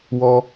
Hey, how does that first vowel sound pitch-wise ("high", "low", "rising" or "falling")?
high